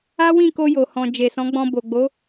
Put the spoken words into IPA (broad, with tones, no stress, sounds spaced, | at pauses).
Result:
a˦ w ĩ˦˨ k o˧ j o˨ h ɔ̃˨ d͡ʒ e˨ s ɔ̃˨˦ ɡ͡b ɔ̃˧ b o˨ ɡ͡b o˨˦